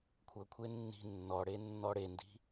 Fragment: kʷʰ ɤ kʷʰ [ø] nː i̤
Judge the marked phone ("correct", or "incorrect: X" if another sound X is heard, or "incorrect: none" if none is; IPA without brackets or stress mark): incorrect: e